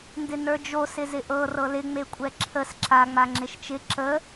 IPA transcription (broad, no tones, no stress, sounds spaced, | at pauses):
n d ɪ n ə˞ d͡ʒ o s ɪ z ɪ ʔ ɤ r ɤ l ɪ ŋ͡m e kʷʼ ɛ ǁʰ ə s ǁ a ŋ͡m a ŋ͡ǁ ɪ ʃ t͡ʃ ɪ ǁ ə